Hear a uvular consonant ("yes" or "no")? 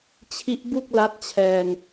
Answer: no